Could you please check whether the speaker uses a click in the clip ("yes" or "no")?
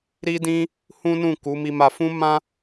no